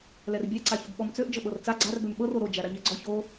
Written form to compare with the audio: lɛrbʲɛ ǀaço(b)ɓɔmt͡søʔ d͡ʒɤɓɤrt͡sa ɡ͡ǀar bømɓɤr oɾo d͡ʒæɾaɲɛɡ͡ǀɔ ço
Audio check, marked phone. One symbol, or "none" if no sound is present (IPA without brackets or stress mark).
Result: b